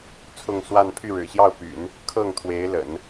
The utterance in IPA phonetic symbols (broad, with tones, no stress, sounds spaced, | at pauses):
t͡sʰ ʊ˥˧ ŋ s w a˥˧ n pʰ y˥˩ ɻ ɻ̩˨˩ ɕ j ɑ˥˩ ʊ̯ p y̰˨˩˦ n | kʰ ɤ˥˩ ŋ t̪ʰ w e˧˥ ɪ̯ l ə̰˨˩˦ n